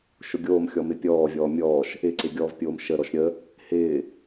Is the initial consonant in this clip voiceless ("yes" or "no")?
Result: yes